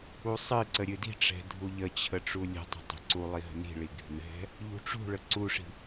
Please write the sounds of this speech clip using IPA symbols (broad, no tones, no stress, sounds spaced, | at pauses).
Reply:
u sˤ ɨ ǀ ə ɾʲ ɨ d i̤ ʈ͡ʂ ɛ̤ dʱ u ʎ ə t͡ɕʰ ə ʈ͡ʂ u lʲ ə̤ tˤ ə̤ tˤ ɛ̤ ǀ u lˠ i ɦ ə̤ n i̤ ɭ i ɡʱ ɨ ɦ ɛ̤ | ʎ ṳ ʈ͡ʂ ṳ ɭ ə ǀ u ʂ i̤